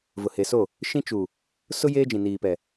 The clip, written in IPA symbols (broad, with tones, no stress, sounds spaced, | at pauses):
v ʊ˨ h e˨ s o˦˨ | ʃ ĩ˦ t͡ʃ u˨ | s ʊ˦ j eː˦ d͡ʒ ĩ˨ n iː˨ p ɛ˨